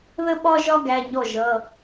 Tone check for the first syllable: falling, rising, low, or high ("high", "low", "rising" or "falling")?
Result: high